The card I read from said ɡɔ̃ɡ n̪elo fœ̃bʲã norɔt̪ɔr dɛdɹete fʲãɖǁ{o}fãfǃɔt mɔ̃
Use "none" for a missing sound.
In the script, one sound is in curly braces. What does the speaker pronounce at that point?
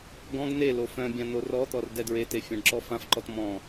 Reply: ɔ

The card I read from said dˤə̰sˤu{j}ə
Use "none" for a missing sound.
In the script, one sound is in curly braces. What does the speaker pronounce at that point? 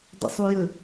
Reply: j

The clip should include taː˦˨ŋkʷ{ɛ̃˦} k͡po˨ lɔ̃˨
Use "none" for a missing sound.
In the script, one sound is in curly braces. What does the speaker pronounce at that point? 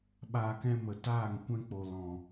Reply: ɛ̃˦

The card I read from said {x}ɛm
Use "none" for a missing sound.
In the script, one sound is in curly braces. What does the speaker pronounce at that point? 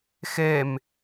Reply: x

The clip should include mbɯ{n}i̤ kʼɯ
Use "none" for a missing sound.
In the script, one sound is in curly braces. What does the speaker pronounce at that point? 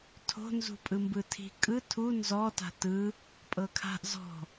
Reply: tʰ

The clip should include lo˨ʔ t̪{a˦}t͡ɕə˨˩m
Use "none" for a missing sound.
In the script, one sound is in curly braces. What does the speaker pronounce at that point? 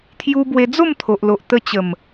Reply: ə˦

